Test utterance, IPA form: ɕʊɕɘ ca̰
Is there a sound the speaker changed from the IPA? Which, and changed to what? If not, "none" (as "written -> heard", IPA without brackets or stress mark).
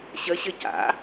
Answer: ʊ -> ə